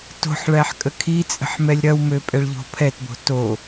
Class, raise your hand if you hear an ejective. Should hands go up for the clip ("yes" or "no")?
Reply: yes